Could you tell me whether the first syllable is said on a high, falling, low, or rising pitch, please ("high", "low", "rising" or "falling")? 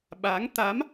rising